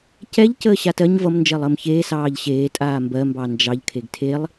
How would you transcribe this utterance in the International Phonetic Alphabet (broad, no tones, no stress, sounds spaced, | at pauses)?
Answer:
c ɛ ʎ c əː ɕ a t ɜ ɲ v ʌ m n d͡ʒ ɜ lˠ əː m ç eː s ɑː ʎ ɕ eː tʼ aː m b ɜ m b ɑ n d͡ʒ ɑ ʎ kʰ e ɡ tʰ e lˠ